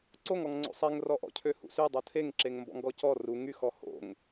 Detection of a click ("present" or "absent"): present